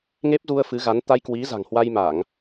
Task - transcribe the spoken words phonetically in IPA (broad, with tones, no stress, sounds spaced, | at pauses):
ŋ e˦˥ p̚ z u˧ ə̯ f ɨ˨˦ ɣ a˨˦ n t̪ a˧ j k w i˨˦ z a̤˨˩ ŋ h w a˧ j m a˧˩˨ ŋ